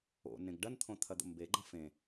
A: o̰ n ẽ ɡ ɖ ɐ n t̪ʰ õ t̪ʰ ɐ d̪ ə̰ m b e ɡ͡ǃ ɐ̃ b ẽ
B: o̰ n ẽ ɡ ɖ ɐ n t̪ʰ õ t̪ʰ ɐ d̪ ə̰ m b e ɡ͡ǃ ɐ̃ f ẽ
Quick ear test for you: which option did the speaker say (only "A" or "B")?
B